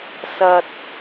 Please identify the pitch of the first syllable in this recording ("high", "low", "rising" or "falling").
low